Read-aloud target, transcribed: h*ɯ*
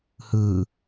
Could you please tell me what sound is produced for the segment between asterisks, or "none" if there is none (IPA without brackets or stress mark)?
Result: ɯ